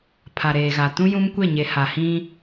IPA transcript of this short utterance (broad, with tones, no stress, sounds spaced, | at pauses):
pʰ a˨ ɾ eː˨ ɣ a˨ t ũ˦ j ũ˦ m kʷ e˦˨ ɲ e˨ h a˨ h ĩ˦